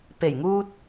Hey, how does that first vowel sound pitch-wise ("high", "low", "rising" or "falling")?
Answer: low